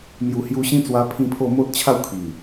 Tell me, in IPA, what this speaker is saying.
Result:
m j u˨˩ h j u˧ ɕ ĩ˦ t͡s w a˧ pʰ ĩ˦ pʰ o˥˧ m o˦ t̚ t͡ɕʰ a˥˧ w kʰ i˨˩

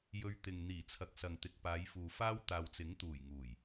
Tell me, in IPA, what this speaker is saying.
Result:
j ɵ˧ ɥ t̪ ɪ˨ ŋ n̪ iː˨˩ t͡sʰ ɐ˨˥ k̚ s ɐ˨ ŋ t̪ ɪ˨ k̚ p aː˨˧ j f uː˨ f aː˥ w t̪ aː˨ w t͡s ɪ˨˥ ŋ t̪ uː˨˩ j ŋ uː˨˩ j

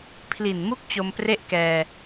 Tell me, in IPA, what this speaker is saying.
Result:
pʰ l i˨˩ n m u˦˥ k̚ t͡ɕ o˧ m p r e˥˩ ʔ k ɛː˧

